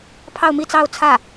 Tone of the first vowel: falling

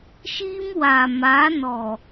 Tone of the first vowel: high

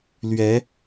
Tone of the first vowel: rising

